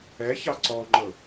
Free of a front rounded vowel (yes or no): yes